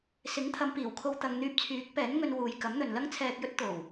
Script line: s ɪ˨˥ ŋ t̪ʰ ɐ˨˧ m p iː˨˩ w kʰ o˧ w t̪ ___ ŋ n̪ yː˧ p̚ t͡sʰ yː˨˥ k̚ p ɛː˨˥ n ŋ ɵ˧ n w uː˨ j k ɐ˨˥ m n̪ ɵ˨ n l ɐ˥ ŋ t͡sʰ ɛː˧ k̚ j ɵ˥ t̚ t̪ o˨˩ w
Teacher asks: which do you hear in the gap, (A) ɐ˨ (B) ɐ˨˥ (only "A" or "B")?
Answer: A